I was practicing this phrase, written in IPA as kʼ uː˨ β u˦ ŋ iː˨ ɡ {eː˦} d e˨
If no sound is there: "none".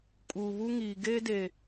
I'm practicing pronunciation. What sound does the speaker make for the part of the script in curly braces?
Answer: eː˦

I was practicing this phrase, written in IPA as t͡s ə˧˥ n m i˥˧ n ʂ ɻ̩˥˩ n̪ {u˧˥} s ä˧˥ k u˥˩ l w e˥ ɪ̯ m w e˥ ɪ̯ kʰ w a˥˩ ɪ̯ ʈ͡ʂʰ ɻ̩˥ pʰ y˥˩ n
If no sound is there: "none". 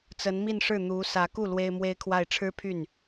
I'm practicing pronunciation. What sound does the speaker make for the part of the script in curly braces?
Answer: u˧˥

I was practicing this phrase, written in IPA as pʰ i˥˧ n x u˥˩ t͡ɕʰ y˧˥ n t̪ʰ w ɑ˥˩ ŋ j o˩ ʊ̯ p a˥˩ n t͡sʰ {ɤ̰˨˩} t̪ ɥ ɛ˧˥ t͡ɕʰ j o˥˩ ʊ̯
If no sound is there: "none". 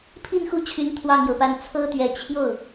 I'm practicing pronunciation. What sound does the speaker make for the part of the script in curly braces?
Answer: ɤ˥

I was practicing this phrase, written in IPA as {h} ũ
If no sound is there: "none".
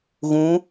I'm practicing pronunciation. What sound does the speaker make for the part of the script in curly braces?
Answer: ɣ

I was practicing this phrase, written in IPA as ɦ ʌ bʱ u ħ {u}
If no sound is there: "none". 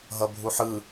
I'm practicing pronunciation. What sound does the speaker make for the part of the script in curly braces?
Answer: ɯ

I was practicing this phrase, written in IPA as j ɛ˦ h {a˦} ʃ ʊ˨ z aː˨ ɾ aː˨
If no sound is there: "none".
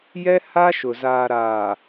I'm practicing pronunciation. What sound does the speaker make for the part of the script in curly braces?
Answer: a˦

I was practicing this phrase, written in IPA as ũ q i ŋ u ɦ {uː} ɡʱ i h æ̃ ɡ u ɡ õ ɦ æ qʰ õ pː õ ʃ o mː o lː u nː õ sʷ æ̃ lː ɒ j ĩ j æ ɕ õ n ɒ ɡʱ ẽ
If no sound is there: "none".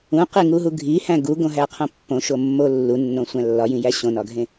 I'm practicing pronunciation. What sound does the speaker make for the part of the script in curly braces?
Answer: u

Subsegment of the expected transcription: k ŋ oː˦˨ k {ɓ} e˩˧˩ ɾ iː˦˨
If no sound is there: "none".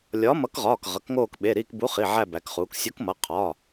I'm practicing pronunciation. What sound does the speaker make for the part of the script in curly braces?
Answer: ɓ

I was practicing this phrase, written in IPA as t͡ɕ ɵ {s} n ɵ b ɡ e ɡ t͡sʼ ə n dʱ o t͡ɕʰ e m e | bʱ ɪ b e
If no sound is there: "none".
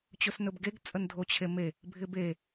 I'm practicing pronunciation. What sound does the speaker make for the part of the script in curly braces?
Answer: s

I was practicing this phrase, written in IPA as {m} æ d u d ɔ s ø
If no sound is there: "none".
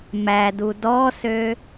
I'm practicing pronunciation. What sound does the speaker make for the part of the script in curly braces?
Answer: m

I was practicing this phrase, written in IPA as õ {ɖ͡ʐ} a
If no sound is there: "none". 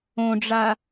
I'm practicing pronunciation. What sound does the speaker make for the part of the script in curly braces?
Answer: ɖ͡ʐ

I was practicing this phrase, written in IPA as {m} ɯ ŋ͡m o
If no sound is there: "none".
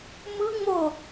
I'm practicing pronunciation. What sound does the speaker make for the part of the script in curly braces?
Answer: m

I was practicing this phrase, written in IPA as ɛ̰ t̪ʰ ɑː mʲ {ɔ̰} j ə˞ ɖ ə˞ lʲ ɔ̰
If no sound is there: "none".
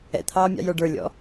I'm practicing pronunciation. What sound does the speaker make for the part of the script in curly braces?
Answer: ɑ̰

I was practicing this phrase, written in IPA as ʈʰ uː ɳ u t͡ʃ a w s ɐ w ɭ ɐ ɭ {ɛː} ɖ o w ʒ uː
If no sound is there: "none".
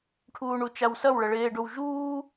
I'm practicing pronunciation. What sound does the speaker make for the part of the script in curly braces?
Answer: eː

